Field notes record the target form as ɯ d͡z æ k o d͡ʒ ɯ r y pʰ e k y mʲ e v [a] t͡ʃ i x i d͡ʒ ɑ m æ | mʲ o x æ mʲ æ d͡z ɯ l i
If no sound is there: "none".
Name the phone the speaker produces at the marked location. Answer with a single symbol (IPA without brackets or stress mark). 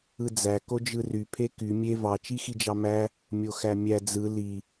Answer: ɑ